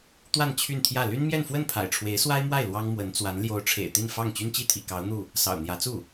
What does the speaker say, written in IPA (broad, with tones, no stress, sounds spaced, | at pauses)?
t̪ w a˥˧ n t͡ɕʰ y˥˧ n t̪ʰ j ä˥˩ l y˥ n m j ɛ˥˧ n f w ə˥˩ n pʰ a̰˨˩ ɪ̯ ʈ͡ʂʰ w e˧˥ ɪ̯ s w a˥ ɪ̯ m w a˥˩ ɪ̯ l w ɑ˥ ŋ m w ə˧˥ n t͡s w a˧˥ n l j o˧˥ ʊ̯ ʈ͡ʂʰ ḛ˨˩ ɪ̯ t̪ i˥˧ n f ɑ˥˩ ŋ t͡ɕ y˥ n t͡ɕ i˥ t̪ʰ ḭ˨˩ k ɑ˧˥ ʊ̯ n̪ u˥˩ | s ɑ̰˨˩ ʊ̯ n̪ j ä˧˥ t͡s u˥˩